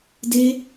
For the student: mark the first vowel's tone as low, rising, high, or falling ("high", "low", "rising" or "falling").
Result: high